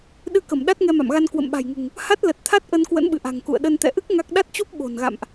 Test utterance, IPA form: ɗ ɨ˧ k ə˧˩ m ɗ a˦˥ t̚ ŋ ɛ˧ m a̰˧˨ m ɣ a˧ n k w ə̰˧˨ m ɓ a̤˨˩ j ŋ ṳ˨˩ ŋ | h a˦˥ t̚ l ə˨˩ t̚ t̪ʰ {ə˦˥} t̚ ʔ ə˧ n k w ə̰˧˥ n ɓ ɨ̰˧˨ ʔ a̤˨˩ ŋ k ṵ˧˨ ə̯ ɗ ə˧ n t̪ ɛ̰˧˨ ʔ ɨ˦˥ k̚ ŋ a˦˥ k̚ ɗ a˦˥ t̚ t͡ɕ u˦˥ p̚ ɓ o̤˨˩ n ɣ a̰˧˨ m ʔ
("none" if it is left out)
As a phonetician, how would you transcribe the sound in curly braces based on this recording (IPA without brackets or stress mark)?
a˦˥